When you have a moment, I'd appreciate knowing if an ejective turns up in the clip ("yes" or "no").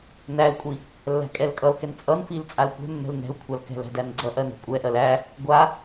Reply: yes